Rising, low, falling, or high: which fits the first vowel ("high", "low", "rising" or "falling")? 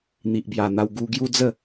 low